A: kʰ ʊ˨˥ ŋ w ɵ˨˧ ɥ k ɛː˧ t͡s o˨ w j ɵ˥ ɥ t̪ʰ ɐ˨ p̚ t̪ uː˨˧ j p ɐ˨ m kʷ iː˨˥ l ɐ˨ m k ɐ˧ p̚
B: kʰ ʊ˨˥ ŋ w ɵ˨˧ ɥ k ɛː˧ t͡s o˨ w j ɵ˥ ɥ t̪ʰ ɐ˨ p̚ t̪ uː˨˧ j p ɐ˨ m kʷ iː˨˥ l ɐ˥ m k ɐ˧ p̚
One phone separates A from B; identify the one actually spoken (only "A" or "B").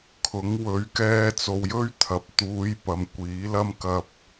B